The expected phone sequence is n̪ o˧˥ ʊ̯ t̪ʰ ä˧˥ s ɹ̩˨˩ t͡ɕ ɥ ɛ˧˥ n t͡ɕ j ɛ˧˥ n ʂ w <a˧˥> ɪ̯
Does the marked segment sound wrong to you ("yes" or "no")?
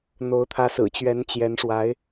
no